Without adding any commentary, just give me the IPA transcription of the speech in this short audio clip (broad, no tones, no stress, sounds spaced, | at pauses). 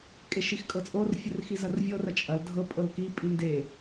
kʼ e ʃ i x kʼ ɤ t͡sʼ o r fʲ ə r x i z ɐ r vʲ ɤ r ɐ t͡ʃʼ ɐ l dʱ ɤ pʼ ɤ l k i pʼ i n d e